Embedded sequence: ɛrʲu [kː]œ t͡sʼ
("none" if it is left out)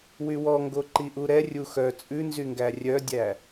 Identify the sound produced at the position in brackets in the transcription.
x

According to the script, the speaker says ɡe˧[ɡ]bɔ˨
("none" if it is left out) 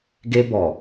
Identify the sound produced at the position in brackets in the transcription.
none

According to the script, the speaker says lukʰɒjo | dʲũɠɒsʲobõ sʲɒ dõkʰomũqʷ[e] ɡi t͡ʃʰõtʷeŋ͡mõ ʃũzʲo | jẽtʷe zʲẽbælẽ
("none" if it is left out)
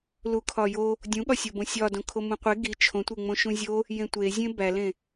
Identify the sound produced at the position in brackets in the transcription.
e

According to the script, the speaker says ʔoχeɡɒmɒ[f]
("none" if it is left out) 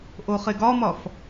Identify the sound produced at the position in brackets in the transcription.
f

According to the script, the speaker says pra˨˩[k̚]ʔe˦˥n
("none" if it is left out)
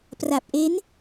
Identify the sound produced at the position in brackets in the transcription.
p̚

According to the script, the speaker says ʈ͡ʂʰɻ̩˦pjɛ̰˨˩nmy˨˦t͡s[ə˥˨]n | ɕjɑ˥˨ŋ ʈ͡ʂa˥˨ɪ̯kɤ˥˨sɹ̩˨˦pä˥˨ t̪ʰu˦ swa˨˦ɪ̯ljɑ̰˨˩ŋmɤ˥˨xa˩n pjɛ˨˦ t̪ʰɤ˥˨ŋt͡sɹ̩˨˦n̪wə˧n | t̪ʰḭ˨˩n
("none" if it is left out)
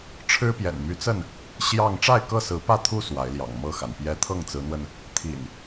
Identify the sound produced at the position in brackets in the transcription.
ə˥˨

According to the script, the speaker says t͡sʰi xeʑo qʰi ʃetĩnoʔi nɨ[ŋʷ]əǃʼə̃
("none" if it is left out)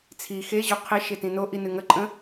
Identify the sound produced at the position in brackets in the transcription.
ŋ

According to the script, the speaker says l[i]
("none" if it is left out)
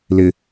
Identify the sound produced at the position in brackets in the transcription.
ɪ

